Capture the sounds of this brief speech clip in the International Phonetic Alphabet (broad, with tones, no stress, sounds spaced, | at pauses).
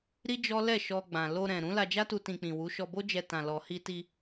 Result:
ɾ i˦ d͡ʒ ɔ˦ l ɛ˦˨ ʃ ɔ˧ ɡ͡b ã˨ l o˧ ɾ ɛ̃˨ ɾ ũ˨˦ l a˧ d͡ʒ a˦ t u˧ t ĩ˧ k͡p ĩ˨ w u˨˦ ʃ ɔ˧ b o˦ d͡ʒ ɛ˧ t ã˨ l ɔ˨ h i˧ t i˧